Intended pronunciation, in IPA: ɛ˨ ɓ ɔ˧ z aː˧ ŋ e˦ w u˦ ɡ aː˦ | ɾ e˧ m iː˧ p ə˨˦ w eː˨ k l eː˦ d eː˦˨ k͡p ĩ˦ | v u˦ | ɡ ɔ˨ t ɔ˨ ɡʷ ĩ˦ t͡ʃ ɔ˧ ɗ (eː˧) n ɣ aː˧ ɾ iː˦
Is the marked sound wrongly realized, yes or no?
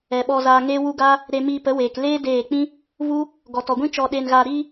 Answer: no